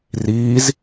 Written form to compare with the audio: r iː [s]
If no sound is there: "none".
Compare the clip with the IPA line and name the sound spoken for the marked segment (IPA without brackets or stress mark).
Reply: z